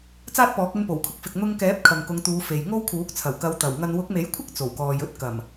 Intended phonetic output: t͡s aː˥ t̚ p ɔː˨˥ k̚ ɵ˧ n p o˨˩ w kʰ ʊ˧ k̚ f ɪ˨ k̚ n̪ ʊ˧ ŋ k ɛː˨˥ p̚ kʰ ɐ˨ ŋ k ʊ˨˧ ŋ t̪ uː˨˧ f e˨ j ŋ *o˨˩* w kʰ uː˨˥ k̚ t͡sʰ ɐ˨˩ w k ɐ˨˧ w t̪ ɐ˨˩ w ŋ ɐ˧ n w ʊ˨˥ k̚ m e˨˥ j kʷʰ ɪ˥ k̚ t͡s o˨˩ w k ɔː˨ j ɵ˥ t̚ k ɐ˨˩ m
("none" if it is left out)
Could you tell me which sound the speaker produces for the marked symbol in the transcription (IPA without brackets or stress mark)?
o˥